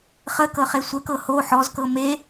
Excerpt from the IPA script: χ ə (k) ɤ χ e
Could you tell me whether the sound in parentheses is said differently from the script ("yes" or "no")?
no